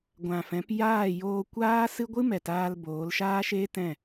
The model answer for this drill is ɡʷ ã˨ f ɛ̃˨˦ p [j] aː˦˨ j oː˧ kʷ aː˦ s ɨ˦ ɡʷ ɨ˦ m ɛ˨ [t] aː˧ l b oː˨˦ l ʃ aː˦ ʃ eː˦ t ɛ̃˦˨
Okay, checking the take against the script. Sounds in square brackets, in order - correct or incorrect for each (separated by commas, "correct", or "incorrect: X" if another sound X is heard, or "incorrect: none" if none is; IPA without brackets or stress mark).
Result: correct, correct